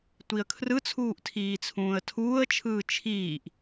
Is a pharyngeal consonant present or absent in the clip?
absent